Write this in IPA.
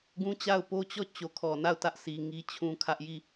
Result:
ɡũ˦t͡ɕa˦˨ʊ̯ po˦t͡ɕɔ˦˨ t͡ɕo˨kʰɔ˨na˦˨ʊ̯tä˦ʔ si˨ŋi˦t͡ɕʰũ˦ kʰä˦ʔ ji˦˨

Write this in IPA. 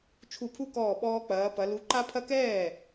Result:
t͡ʃʰu˧˩pʰu˦kɔː˧˩ ɓɔː˦k͡pɐː˨˦pɐ˨˦ lu˨˦ǃa˦pʰɐ˦kɛː˥˩

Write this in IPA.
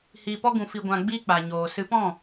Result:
hiː˧pɔ˦ɡũ˧ fi˧ɡʷã˧ɡ͡biː˦k͡pa˨ ɲoː˨ sɨ˨˦pɔ̃˦˨

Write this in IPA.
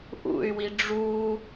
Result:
ʔṵy̯wi ɖ͡ʐu

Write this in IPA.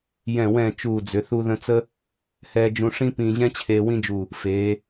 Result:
jɛ̃˧˩ wɛ̃˧˩ t͡ʃuː˧˩d͡zʏ˩˧ θu˧ðə̃˧t͡sə˥ | hɛː˧d͡ʒũ˧ʂĩ˥ pĩː˧ʑɛ̃˥t͡ɕʰeː˧ wĩ˥d͡ʒu˧˩ | feː˩˧

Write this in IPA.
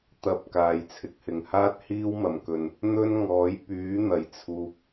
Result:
t̪ɐ˧p̚ kaː˨jt͡sʰɪ˨k̚hɪ˨ŋ haː˥t̚hiː˥wmɐ˨˩mkɵ˨n | n̪ɵ˥nŋɔː˨˥j pyː˨˥n̪ɐ˨˩jt͡sʰuː˨k̚

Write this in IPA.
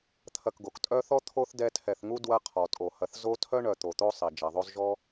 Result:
t̪ʰɐ˨kɡo˩k tʼœ˦θɔ˥ t̪ʰo˥θdɛ˦tʰɛ˨θŋu˥ dwɐ˦qʰɔ˩tʼo˩hɐ˨θ zo˥ tʰœ˥ ɳœ˨ t̪o˨t̪o˥sˤi˩ d͡ʒɛ˩ðˤo˦zʒɔ˥

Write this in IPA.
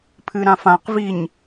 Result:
pʰɨɾãfãqviɲ

